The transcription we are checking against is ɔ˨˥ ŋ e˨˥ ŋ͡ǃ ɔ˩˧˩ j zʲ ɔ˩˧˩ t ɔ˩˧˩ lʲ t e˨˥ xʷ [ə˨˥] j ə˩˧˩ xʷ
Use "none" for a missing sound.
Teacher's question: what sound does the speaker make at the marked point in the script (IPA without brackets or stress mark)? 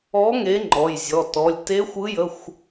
ɯ˨˥